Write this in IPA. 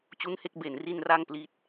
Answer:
t͡ɕu˦˥nhe˥˩k̚ be˨˩nri˧n ra˥˩ŋpli˦˥t̚

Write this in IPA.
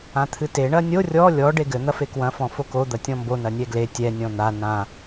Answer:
ãt̪ʰɨte ɳɐnʲo rʲɔ lʲɔ ɖeɡɘ n̪ɐfekwɐ̃ fɔ̃foko d̪ɐtʲɔ̃mbo nɐnʲɛɡle tʲɛ nʲɔ̃n̪a nã

